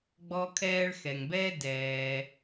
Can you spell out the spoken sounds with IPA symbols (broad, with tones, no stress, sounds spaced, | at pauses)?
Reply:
ɡ͡b ɔ˧ kʰ ɛː˧ ɭ x ɛ˨ ŋ b ɛː˦ d ɛː˧